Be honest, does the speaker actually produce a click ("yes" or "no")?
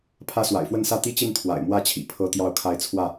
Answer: no